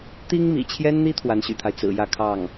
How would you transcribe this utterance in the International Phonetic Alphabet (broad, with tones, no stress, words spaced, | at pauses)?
t̪i˥ŋmḭ˨˩t͡ɕʰjɛ˥nn̪i˥ t̪ʰwa˧˥n ɕy̰˨˩t̪ʰa˦ɪ̯ t͡sɹ̩˨˩jä˥˧kʰɑ˥˩ŋ